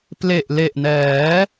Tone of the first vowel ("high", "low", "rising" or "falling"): low